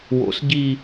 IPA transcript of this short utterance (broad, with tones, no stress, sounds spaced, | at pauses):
w o̰˩˧ s ɟ i˨˩